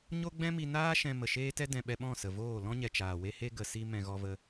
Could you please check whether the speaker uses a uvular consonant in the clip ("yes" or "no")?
no